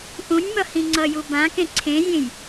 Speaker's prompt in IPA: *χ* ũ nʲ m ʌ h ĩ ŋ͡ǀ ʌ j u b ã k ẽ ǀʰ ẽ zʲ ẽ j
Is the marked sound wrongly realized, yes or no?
yes